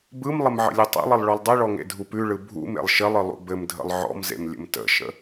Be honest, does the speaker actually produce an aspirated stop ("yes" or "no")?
no